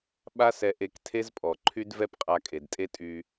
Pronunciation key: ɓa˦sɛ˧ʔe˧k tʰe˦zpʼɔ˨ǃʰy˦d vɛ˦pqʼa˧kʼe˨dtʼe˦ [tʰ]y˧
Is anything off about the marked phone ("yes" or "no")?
yes